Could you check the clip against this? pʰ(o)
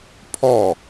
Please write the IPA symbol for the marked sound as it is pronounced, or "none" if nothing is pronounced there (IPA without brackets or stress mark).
ɔ